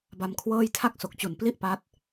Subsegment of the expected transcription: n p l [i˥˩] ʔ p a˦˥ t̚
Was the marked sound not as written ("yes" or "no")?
no